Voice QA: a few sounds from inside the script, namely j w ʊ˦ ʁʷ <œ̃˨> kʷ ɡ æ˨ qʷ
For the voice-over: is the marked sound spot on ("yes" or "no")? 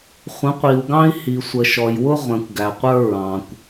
no